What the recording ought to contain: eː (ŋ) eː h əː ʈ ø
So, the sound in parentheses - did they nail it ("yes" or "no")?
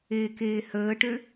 no